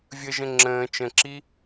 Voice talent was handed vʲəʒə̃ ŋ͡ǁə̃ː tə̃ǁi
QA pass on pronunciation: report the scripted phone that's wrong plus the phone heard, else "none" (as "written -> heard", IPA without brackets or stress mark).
t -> t͡ʃ